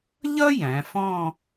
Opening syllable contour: high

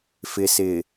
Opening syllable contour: low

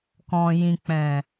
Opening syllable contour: low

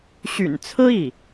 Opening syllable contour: low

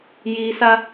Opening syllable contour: high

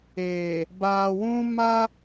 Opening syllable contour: low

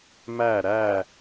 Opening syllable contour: falling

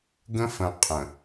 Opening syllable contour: high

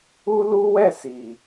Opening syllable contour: high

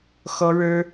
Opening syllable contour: high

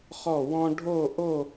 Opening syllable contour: falling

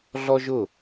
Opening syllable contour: high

